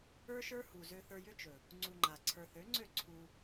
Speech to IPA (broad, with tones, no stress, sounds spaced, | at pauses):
ə˞˦ ʃ ə˞˦ h u˨ z ø˧ θ ə˞˧ j ʏ˦ t͡ʃ ɵ˨ | ŋ͡ǀ u˧ ŋ͡ǃ a˨ ǀʰ ə˞˧ θ ø˨˦ ŋ͡ǀ ø˦˨ ǀʰ u˧